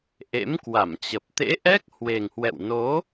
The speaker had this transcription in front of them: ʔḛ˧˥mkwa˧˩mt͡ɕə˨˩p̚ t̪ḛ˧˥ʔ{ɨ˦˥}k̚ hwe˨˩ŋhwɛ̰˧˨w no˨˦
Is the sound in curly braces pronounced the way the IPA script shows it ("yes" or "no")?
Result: no